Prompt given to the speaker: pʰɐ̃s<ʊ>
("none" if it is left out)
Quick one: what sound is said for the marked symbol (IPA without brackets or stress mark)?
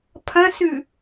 ʉ